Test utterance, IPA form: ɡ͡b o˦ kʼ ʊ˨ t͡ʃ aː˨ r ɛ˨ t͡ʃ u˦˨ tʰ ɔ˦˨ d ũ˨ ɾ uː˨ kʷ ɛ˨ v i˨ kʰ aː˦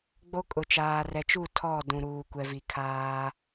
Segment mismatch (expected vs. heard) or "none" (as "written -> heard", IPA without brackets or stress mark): none